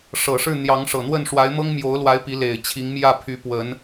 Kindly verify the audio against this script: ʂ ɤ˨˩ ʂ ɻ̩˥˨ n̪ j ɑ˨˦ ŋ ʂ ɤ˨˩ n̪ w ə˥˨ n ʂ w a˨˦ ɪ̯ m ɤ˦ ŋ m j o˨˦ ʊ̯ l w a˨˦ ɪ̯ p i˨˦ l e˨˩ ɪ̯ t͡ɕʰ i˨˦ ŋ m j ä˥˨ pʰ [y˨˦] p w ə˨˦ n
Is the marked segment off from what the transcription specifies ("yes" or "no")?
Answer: no